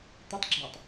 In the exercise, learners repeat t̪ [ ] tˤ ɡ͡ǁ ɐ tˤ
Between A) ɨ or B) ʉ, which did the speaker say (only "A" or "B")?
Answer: A